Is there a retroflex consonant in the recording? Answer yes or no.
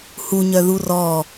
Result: no